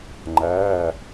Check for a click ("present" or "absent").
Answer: present